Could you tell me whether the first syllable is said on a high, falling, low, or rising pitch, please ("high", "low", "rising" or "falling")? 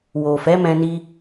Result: low